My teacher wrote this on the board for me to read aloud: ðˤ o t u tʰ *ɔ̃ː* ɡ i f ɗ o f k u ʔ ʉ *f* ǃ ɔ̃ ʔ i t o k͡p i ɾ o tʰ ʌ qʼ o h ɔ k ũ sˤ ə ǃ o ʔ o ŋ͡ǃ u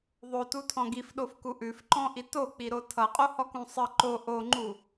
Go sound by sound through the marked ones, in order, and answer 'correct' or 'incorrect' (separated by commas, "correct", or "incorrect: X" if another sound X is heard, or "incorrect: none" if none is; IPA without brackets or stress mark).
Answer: incorrect: ɔ̃, correct